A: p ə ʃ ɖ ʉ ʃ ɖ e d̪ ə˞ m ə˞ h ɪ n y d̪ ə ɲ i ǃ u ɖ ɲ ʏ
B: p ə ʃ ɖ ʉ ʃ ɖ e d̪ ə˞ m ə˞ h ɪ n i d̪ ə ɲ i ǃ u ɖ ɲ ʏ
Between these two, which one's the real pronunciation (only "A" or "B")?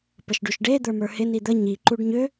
B